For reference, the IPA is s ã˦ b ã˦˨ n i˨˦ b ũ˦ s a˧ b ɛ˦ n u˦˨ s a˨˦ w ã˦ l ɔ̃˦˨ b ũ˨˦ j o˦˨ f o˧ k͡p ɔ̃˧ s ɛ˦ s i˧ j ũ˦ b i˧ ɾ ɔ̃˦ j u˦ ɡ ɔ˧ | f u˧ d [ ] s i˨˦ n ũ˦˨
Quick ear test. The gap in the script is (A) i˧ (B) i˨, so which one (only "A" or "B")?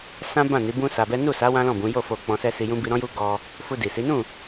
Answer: B